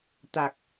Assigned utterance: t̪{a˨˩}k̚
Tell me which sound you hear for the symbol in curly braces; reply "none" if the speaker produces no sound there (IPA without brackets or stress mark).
a˨˩